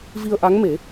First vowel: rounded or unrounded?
unrounded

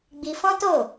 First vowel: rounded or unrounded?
unrounded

